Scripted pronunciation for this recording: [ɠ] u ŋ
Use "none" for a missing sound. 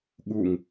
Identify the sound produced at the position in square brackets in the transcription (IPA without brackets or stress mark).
ɠ